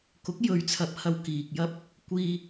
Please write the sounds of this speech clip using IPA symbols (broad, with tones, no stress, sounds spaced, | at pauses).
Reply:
k ʊ˨˥ k̚ j ɵ˨˧ ɥ t͡sʰ ɐ˨ p̚ h ɐ˧ w k iː˨ k̚ j ɐ˥ p̚ | kʷ iː˧